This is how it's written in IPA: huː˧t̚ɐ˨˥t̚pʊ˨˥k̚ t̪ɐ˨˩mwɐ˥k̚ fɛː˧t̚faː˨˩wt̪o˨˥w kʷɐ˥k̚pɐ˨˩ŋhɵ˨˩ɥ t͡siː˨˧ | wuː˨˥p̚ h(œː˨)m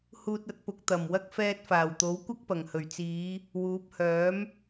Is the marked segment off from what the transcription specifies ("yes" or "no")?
yes